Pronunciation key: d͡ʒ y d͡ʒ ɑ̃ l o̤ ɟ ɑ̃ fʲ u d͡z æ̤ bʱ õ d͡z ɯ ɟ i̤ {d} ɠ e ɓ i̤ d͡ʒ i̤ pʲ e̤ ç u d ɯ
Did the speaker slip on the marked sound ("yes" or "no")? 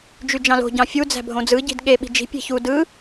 no